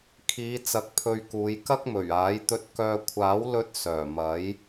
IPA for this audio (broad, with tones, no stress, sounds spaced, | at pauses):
kʰ iː˨˧ t͡s ɐ˧ k̚ pʰ ɵ˧ ɥ k uː˨˧ j k ɐ˥ k̚ m ɵ˨˩ ɥ aː˨˥ j t̪ ɵ˧ t̚ k œː˧ kʷʰ aː˨˥ w l ɵ˧ t̚ s œː˨˩ m ɐ˨˥ j